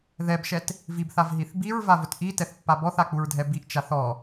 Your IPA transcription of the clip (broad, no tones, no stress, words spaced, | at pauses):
ðɛbʃɛt | vibθavɦiθ biɹvavʊt ʔitɛθpːa bɔθak͡puɹdʱɛ biʔt͡ʃaθ ɔ